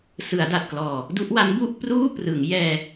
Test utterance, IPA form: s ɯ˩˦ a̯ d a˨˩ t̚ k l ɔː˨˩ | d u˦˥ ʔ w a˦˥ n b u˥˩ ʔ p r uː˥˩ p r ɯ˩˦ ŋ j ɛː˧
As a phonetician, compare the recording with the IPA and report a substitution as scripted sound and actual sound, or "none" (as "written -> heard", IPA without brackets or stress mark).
none